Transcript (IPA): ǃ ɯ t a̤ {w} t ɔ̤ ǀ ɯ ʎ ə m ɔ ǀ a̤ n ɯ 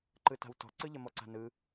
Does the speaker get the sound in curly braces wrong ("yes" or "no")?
no